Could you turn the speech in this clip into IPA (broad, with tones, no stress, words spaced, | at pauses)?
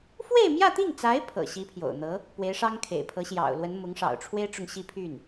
fwe˥˧ɪ̯mjä˥˧t̪i˥˩ŋt͡sa˧˥ɪ̯ pʰɤ̰˨˩ɕi˧˥pʰjo̰˨˩ʊ̯n̪ɤ˧˥ | pwe˧˥ɪ̯ʂɑ˥ŋkʰḛ˨˩ɪ̯ pʰɤ˧˥ɕjɑ̰˨˩ʊ̯lwə˧˥n mʊ˧˥ŋʂɑ̰˨˩ʊ̯ʈ͡ʂʰwe˥ɪ̯ʈ͡ʂʊ˨ŋ ɕi˥˧pʰy˥˩n